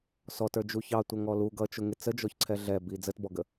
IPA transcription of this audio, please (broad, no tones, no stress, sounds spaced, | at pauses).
s ɔ t ə˞ d͡ʒ u ç ɑ tʷ ʌ ŋ ɔ l u ɡ ʌ t͡ʃ ʊ ŋ ɪ t͡s ə d͡ʒ ɔ ç ǀʰ ɛ ɮ ɛ b i d͡z ə t b ɔ ɡ ə